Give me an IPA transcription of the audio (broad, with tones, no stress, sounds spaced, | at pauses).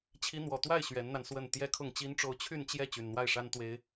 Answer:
t͡ɕʰ i˧˥ n̪ w ɔ˨˩ t̪ w a˥˩ ɪ̯ ɕ ɥ ɛ˧˥ n n̪ a˧ n s w ə˥˩ n t̪ j ɛ˥ kʰ ʊ˥˩ ŋ t͡ɕ i˥ n ʈ͡ʂ o˥˧ ʊ̯ t͡ɕʰ y˥˧ n t͡ɕ j ɛ˥˩ t͡ɕ y˨˩ n n̪ w a˥˩ ɪ̯ ʂ a˥ n t̪ w e˥ ɪ̯